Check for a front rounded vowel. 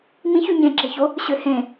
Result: present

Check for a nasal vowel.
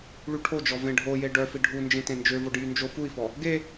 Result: present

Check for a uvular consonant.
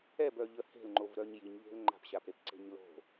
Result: absent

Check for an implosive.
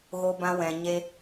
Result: absent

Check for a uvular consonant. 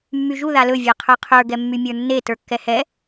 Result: present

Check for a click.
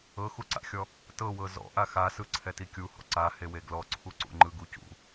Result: present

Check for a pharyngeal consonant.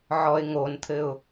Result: present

